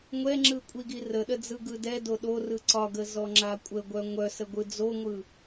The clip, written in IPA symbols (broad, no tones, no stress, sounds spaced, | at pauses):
ŋʷ ɛ ŋ͡ǁ ɯ kʷʼ i ɡ i r ə ɗ ə d͡z ɯ ɡ ɯ d ɛ d o ɗ o r ɯ ǀ ɒ ɡ ə z ɔ ŋ͡ǁ a kʷʼ ə ɡʷ œ ŋʷ œ s ə ɡʷ ɯ d͡z o ŋʷ ɯ